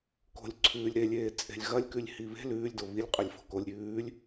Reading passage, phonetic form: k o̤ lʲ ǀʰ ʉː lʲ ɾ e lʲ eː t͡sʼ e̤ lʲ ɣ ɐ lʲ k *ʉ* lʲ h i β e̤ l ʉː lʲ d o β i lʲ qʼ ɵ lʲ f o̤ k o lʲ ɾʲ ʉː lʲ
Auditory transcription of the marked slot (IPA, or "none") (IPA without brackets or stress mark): ʉ